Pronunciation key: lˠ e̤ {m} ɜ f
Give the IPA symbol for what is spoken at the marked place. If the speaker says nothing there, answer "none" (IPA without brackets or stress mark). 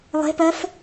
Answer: p